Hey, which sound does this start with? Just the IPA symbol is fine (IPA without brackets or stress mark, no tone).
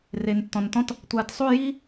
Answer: r